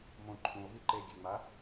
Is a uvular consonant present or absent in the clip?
absent